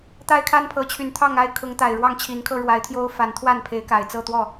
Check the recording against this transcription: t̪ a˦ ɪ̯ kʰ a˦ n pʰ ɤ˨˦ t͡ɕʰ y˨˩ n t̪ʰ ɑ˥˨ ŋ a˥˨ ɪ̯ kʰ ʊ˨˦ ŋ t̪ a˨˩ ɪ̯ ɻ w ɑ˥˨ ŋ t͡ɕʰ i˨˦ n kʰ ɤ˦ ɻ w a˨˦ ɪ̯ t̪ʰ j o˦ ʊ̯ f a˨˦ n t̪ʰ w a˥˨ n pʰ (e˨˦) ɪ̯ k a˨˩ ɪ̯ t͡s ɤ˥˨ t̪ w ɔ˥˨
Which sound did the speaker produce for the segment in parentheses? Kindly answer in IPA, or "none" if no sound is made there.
e˨˦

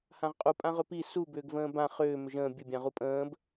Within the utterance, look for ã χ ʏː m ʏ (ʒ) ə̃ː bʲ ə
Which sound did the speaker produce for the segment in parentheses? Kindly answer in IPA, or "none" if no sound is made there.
ʒ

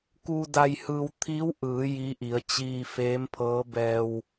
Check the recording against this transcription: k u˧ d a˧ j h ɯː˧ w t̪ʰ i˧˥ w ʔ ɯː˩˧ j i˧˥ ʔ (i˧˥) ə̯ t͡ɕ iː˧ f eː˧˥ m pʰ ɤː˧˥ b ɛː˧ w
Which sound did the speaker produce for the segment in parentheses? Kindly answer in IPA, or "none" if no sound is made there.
i˩˧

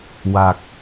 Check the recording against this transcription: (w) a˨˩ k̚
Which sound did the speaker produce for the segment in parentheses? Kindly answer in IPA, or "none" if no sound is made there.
w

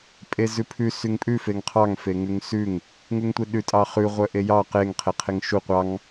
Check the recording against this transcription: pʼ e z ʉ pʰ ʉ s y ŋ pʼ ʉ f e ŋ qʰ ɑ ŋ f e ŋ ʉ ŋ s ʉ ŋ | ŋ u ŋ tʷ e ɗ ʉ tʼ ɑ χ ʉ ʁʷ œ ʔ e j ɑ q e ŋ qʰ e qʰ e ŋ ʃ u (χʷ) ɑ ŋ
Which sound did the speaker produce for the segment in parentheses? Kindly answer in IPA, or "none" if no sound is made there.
qʷ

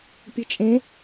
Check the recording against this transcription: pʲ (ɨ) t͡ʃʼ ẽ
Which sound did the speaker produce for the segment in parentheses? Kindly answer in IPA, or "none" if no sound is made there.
ɨ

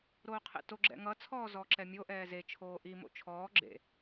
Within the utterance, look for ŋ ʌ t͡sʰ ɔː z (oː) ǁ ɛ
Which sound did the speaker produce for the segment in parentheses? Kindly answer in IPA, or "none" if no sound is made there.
ɔː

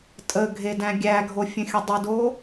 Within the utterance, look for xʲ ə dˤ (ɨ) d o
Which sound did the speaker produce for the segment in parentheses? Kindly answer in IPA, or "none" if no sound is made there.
ɨ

